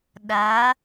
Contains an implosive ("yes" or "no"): yes